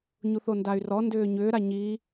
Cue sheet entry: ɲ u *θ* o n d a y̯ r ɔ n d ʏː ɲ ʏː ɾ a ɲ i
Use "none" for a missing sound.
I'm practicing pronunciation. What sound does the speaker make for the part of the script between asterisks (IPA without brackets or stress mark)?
θ